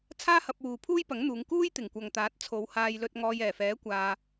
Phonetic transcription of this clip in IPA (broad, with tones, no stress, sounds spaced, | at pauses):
t͡sʰ aː˥ h ɐ˧ p̚ w uː˨ pʰ uː˥ j p ɐ˨˥ ŋ n̪ uː˨˧ ŋ k uː˥ j t̪ ɪ˨˩ ŋ kʷ ɐ˨ ŋ t̪ aː˨˥ t̚ t͡sʰ o˨˧ w h aː˧ j l ɵ˧ t̚ ŋ ɔː˧ j ɛː˨˩ f ɛː˨˥ kʷ aː˧